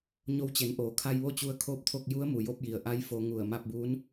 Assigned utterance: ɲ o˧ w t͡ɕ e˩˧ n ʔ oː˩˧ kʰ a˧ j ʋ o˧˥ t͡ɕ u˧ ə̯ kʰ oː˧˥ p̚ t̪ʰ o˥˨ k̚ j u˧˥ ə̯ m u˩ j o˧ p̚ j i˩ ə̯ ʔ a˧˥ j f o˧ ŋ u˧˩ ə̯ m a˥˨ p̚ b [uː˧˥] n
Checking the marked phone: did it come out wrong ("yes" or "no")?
no